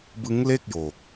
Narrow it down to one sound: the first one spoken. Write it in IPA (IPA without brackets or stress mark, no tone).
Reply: b